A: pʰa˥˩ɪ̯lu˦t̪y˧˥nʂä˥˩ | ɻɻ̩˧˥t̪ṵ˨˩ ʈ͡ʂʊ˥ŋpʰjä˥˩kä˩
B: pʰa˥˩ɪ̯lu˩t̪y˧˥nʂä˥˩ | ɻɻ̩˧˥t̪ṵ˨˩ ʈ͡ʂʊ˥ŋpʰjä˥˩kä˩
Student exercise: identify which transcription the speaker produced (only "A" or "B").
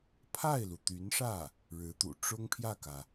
B